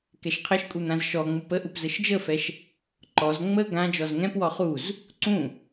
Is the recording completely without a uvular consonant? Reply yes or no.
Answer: no